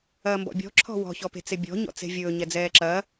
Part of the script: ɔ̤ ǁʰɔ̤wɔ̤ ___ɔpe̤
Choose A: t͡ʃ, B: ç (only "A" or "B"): B